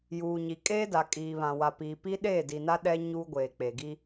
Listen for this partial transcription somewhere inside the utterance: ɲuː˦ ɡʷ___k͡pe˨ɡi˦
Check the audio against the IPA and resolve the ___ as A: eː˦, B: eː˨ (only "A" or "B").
B